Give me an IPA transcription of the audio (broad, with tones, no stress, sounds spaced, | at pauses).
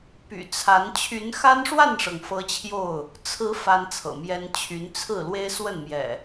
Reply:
p y̰˨˩ t͡sʰ a˨˦ n t͡ɕʰ y˨˦ n x a˦ n ʂ w a˥˨ n ʂ ɤ˩ ŋ f ɤ˦ t͡ɕʰ j o˥˨ ʊ̯ | t͡sʰ ɹ̩˨˦ f a˦ n t͡sʰ ɤ̰˨˩ m j ɛ˦ n t͡ɕʰ y˨˦ n t͡sʰ ɹ̩˥˨ l w e˦ ɪ̯ s w ə˥˨ n m j ɛ̰˨˩